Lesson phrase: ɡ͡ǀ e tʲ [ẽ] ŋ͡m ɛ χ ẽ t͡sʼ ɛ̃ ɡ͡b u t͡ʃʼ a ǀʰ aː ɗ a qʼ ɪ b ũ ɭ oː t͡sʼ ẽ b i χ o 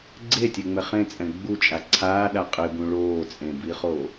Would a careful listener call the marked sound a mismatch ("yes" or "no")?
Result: yes